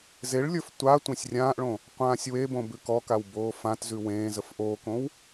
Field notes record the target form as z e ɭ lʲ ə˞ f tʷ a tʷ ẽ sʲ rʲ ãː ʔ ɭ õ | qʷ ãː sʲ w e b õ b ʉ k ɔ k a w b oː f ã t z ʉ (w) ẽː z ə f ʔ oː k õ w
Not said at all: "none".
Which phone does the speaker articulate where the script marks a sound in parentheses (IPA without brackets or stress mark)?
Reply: w